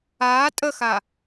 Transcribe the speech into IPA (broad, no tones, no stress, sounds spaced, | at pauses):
aː tʼ ə x a